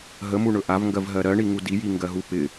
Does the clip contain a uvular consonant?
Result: no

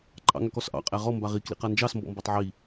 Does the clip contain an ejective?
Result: yes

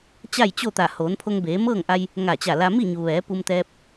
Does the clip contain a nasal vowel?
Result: no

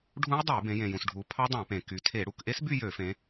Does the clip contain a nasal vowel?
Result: yes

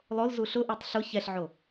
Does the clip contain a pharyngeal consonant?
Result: yes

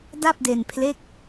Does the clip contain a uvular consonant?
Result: no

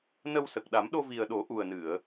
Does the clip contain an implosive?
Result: yes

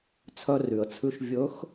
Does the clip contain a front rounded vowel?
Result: yes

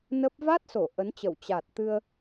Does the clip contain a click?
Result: no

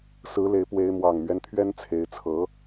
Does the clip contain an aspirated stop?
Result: yes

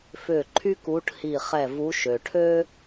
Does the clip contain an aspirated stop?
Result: yes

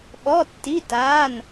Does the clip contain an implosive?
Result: yes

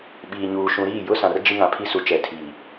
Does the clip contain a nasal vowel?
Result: yes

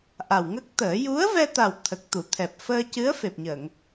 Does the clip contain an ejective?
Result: no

